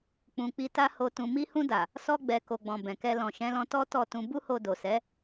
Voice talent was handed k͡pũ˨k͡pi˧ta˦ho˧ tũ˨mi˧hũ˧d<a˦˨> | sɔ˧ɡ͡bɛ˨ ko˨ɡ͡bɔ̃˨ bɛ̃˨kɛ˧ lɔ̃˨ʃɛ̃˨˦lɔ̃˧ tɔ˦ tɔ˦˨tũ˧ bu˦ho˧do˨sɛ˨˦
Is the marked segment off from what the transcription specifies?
yes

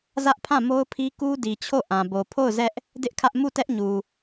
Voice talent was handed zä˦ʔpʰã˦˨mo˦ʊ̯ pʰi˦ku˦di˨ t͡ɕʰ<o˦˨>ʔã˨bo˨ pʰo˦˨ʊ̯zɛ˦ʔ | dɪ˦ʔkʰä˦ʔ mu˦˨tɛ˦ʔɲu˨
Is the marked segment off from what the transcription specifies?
no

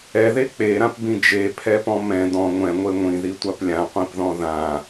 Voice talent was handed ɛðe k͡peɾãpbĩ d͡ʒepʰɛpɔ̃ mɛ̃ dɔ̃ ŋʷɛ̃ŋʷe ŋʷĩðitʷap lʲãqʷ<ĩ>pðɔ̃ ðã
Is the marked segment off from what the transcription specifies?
no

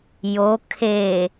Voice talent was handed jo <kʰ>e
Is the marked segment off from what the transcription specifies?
no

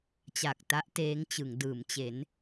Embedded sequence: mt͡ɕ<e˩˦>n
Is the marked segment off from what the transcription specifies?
no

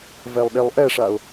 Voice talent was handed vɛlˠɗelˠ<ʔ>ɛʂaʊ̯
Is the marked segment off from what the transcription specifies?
no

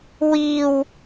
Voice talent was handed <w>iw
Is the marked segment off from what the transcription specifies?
no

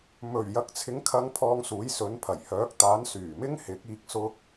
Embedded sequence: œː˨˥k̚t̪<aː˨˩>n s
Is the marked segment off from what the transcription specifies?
yes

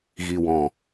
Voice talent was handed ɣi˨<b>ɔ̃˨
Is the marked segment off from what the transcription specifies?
yes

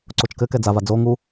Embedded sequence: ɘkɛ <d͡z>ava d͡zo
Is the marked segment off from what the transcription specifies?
no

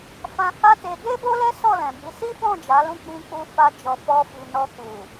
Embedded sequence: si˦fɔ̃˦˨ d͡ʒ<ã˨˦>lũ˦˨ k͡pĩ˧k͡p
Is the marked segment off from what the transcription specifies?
yes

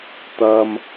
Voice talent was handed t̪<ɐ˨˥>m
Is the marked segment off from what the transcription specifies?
yes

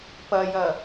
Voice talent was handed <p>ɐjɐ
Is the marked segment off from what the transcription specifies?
no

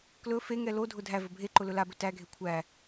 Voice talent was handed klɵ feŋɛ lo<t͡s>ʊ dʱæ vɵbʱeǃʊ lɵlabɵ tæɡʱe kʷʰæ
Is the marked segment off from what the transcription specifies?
yes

